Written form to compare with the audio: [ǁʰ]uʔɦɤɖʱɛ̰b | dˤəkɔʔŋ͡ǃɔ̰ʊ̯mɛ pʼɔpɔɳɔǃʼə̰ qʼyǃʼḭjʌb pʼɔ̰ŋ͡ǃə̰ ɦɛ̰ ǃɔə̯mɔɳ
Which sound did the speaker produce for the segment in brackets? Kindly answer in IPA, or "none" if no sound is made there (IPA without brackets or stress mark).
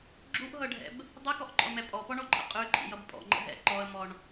ɡ͡ǁ